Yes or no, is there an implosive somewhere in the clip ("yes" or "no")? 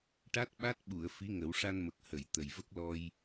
yes